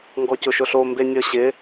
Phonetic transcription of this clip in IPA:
ŋ ɡ ɔ c ʊ ʃ ʊ ɬ o m b e nʲ ɔ ɕ ɪ

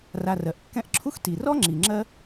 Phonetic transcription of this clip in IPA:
r a˨ r ɜ˩ ʔ kː ɛ̃˦ ʔ ǁʰ u˥ x t i˩ r ɔ˥ ŋ͡ǁ i˩ ŋ͡ǁ ɜ˦

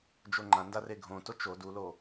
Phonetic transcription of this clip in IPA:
d͡ʒ o ŋ͡ǃ ã n d a r e ɡʱ õ t o t͡ʃ o d u l o

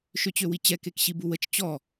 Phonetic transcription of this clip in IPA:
ʃ ø t͡ɕ ø w i t͡ɕ ɛ k e k ɕ i b u w ə t͡ʃ t͡ɕ ɔ

